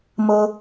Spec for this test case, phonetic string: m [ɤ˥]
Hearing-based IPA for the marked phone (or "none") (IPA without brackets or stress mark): ɤ˥